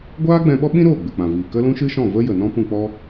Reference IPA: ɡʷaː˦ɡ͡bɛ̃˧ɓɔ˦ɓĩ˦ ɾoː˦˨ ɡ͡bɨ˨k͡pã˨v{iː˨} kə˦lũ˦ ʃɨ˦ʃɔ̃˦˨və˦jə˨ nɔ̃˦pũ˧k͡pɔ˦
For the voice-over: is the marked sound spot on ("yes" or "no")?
yes